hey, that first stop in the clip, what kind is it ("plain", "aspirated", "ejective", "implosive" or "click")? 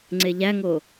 click